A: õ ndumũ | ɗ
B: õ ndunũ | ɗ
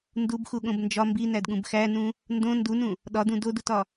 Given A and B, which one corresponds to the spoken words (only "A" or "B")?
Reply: B